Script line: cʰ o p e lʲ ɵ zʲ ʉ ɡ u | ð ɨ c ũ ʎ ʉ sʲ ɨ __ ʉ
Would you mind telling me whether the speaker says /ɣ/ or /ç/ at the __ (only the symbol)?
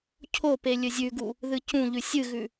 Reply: ɣ